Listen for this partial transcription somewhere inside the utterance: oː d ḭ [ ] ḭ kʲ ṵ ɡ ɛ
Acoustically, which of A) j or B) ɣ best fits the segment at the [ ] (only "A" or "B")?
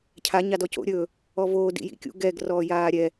A